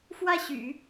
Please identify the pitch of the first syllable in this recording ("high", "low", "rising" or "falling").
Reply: falling